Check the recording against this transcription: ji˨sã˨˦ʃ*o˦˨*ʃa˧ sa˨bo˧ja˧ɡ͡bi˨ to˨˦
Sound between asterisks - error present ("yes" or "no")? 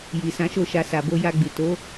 no